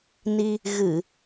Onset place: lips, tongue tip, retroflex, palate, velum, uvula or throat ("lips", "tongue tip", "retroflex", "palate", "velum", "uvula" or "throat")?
tongue tip